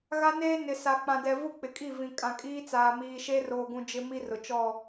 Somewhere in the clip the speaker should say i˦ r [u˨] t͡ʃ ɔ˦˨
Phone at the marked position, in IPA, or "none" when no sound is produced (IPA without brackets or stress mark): ʊ˨